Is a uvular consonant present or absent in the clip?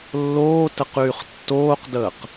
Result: present